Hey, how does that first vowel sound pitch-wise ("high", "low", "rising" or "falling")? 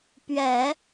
low